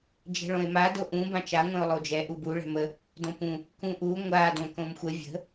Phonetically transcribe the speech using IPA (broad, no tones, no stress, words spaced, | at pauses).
d͡ʒɛ̤ɭõe̯ma doʔũ bãt͡ʃa ŋʷɛ̃o̯lˠod͡ʒɛ ʔubu ɭɛ̤mə | dõpũ | kũʔu ŋʷa dõkõmxʷə vʲə̤